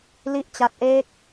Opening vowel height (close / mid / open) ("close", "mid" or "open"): close